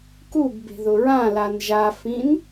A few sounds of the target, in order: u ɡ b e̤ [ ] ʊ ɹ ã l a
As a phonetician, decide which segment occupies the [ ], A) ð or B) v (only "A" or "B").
A